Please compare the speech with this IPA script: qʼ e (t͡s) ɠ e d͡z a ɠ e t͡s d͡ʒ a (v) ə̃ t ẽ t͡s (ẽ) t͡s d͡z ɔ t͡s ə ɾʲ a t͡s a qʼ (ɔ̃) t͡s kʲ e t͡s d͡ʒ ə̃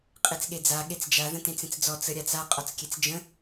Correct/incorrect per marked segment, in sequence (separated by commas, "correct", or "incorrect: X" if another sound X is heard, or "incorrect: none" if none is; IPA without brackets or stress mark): correct, incorrect: ð, correct, incorrect: ɔ